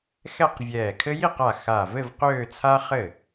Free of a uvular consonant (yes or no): no